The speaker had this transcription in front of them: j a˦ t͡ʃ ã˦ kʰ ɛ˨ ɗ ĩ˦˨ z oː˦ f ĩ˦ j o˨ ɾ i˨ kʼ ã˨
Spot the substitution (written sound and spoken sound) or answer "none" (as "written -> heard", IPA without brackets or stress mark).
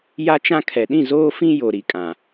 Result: none